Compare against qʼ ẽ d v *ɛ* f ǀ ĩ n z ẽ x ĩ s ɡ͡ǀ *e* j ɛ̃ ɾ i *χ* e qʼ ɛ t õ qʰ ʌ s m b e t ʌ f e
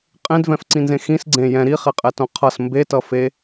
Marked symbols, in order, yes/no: no, no, yes

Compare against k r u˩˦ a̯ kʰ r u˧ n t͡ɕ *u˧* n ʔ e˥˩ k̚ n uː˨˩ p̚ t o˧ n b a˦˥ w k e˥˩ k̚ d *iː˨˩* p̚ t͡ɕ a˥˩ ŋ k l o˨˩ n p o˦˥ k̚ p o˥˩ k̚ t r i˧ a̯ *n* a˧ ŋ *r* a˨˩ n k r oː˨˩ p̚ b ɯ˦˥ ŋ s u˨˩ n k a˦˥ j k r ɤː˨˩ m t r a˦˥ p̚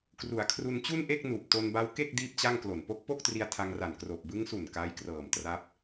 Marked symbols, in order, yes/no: no, no, no, yes

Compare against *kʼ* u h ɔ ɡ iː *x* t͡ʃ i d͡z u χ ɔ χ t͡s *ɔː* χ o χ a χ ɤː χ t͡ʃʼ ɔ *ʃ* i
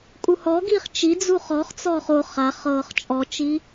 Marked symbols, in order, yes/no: yes, no, yes, no

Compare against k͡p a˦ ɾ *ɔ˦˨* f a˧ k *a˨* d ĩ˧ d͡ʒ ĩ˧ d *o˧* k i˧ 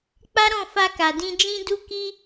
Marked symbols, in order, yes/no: no, yes, no

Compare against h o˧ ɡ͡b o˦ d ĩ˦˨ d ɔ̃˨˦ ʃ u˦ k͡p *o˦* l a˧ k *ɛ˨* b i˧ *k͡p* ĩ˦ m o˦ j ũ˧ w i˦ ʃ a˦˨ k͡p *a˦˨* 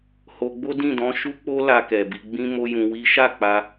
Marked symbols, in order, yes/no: yes, yes, no, no

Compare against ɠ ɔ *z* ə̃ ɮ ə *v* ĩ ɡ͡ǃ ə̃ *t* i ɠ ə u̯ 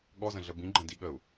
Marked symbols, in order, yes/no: yes, no, no

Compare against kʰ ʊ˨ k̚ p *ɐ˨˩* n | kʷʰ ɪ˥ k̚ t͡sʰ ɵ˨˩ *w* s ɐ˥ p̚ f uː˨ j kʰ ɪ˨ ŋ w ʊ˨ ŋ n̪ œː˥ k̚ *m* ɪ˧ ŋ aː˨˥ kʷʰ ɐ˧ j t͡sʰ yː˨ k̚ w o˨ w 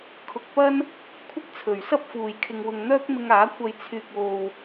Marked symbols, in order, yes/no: no, no, yes

